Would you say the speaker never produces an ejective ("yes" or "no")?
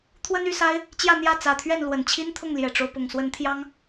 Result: yes